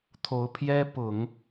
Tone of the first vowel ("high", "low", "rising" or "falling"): rising